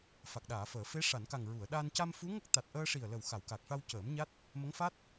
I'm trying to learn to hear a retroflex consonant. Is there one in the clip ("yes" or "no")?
yes